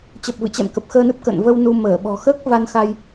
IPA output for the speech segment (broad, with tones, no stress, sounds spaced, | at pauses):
t͡ɕ ə˨˩ p̚ v ɨ̰˧˨ t͡ɕ ɛ̰˧˨ m k ə˨˩ p̚ x əː˧ n ɨ˦˥ p̚ k ə̰ː˧˨ n v ə˧ w n u˧ m əː˧˩ ɓ ɔ̤˨˩ x əː˦˥ k̚ v a˧ n x a˧ j